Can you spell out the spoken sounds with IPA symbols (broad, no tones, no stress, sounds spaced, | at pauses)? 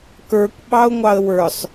k ə˞ kʷ ɓ ɑ ʊ̯ ŋʷ ɑ ə̯ w ə˞ sˤ